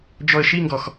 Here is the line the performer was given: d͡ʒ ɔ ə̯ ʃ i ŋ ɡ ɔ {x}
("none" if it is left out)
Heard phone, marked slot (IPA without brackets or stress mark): x